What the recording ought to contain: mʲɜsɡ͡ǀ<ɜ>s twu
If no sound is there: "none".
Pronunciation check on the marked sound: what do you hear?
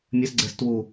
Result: ɛ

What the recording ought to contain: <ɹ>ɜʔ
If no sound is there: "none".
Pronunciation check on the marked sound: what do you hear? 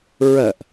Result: ɹ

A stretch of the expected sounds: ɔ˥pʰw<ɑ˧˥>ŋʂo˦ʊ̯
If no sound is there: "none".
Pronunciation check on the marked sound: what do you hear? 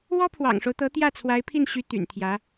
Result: ɑ̰˨˩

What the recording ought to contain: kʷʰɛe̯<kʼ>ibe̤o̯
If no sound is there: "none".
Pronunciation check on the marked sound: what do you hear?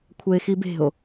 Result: x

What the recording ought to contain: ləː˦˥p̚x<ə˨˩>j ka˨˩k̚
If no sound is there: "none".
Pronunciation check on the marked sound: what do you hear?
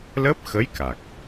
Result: ə˧˥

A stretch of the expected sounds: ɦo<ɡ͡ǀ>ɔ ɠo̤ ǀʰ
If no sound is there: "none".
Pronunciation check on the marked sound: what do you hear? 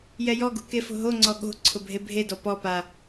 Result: ŋ͡ǀ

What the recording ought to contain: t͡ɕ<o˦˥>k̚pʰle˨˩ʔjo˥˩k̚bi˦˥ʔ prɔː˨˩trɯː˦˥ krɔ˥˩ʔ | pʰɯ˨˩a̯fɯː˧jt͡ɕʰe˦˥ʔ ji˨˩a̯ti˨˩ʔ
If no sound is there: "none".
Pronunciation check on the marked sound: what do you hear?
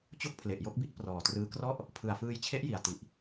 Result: o˥˩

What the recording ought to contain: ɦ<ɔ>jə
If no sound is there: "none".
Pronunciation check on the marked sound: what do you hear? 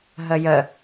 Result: ə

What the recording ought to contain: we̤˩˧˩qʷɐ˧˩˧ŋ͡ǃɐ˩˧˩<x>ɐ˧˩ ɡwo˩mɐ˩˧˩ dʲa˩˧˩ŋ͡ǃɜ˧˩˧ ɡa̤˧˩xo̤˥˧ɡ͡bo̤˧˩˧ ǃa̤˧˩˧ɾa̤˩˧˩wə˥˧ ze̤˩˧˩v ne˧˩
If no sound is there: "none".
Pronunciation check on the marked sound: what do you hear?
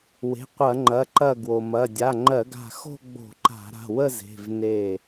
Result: ǃ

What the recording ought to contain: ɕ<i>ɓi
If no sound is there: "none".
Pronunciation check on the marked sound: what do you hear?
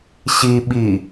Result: i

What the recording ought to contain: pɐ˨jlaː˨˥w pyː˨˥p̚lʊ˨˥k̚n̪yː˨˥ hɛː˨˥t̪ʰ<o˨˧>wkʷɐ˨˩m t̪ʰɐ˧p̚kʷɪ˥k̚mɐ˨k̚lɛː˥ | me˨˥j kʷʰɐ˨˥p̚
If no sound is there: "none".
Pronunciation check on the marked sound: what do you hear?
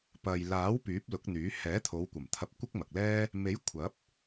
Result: o˨˧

